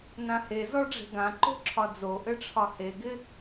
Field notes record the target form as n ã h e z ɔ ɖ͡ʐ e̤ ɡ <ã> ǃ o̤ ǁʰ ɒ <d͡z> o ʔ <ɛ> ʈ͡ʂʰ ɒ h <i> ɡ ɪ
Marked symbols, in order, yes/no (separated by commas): yes, yes, no, no